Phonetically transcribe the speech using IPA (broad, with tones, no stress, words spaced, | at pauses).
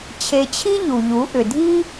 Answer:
t͡ɕʰe˧t͡ɕʰi˥ ʎu˩ʎu˩˧ʔʏ˩ dʱi˥